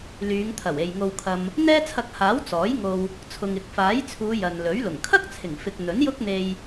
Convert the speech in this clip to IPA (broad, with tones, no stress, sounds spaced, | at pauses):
l yː˨˧ ŋ t̪ʰ ɐ˨˩ w e˨ j ŋ o˧ w kʰ ɐ˧ m | n̪ ɛː˥ t͡sʰ ɐ˧ k̚ h aː˨˥ w t͡s ɔː˨˥ j ŋ o˧ w | t͡sʰ ʊ˨ ŋ ɪ˨ k̚ f aː˨˥ j t͡sʰ uː˨˧ j ɐ˨ n l ɵ˨˥ ɥ l ʊ˨˩ ŋ kʰ ɐ˥ k̚ t͡sʰ ɪ˨˩ ŋ f ɪ˨ k̚ n̪ ɵ˨˥ n j ʊ˥ k̚ n̪ e˧ j